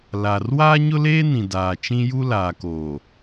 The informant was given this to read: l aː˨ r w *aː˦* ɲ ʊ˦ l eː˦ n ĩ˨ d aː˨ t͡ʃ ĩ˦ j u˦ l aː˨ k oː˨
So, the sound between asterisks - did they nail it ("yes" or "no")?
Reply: yes